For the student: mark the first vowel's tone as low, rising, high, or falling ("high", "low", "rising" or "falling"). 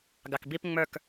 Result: low